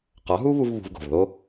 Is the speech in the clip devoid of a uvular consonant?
no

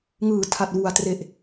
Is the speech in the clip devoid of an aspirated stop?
no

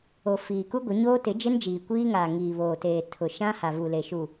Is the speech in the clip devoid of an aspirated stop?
no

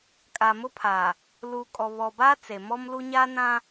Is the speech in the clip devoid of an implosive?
yes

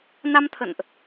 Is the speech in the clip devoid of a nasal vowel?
yes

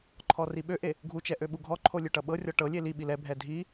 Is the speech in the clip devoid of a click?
no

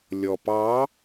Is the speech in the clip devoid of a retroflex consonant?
yes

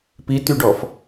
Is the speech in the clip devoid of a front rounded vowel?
no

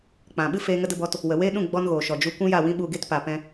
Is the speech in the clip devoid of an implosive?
no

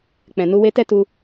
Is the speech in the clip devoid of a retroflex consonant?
yes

